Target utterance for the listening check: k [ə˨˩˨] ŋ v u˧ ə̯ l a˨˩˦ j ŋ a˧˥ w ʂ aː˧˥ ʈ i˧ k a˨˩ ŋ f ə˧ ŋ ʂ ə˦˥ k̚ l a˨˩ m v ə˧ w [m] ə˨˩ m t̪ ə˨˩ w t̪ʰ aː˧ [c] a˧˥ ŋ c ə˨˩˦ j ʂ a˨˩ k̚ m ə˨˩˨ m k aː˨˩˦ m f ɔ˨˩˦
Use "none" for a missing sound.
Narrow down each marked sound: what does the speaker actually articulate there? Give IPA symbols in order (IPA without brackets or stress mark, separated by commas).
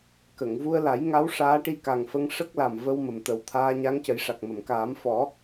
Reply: ə˨˩˨, m, ɲ